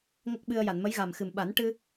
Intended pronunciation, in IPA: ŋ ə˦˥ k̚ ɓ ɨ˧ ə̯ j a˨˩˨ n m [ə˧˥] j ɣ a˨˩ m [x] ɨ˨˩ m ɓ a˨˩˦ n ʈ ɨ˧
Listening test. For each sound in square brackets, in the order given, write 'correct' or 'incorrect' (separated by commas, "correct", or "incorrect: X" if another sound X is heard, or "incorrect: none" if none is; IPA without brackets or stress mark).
correct, correct